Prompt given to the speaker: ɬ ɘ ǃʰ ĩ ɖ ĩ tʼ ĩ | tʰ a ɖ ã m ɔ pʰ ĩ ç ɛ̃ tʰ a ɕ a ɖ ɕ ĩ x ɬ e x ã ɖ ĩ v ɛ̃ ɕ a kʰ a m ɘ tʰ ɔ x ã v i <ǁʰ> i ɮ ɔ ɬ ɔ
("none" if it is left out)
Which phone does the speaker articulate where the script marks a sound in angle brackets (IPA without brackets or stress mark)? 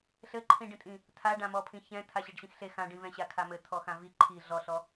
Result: ǃʰ